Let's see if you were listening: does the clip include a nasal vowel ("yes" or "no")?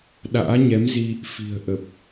no